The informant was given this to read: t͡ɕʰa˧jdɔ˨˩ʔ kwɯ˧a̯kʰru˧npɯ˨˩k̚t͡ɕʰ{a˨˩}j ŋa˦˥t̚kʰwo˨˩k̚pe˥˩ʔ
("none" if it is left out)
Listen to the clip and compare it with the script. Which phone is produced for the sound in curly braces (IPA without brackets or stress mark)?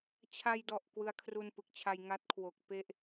a˧